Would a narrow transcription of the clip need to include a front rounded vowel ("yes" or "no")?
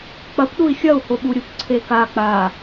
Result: no